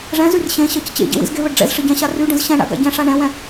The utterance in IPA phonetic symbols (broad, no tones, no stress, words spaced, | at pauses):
ʐɛ̃zyr ɕẽɕɜc t͡ɕḛɟḛ wḭzɡeβəɖ ɖ͡ʐɛ̰zʂəɟɛ̃ɕa ryɖə̃z ɕɛ̃ɳa̰ ɡa̰ɟɛ̃ʂa ɳɛ̃wɛ̃